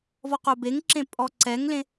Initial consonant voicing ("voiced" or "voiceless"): voiced